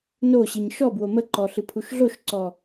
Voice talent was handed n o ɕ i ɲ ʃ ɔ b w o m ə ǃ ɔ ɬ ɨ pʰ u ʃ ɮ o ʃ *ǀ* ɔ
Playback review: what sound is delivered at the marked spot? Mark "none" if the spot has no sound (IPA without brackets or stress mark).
ǀ